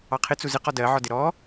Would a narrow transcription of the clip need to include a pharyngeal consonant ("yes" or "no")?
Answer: yes